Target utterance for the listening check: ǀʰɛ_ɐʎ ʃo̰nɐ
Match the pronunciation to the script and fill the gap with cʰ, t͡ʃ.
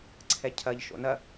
cʰ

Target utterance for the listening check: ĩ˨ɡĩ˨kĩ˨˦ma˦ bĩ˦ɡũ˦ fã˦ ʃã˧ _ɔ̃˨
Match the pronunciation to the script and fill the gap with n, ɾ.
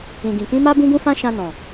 n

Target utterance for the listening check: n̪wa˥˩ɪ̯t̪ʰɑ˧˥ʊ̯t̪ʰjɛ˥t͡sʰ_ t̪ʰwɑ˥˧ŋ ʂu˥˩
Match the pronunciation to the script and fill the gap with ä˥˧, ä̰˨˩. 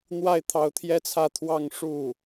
ä˥˧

